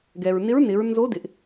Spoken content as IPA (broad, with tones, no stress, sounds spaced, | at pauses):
ɡ ɛ˩ ɹ n ɪ˧˥ ɹ n ɪ˩˧ ɹ n z o˧˥ d ɪ˩ ʔ